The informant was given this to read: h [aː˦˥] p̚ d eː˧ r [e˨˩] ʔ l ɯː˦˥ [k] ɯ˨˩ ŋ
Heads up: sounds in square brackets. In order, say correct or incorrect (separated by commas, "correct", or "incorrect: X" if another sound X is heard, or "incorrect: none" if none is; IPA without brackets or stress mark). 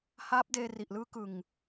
correct, incorrect: i˨˩, correct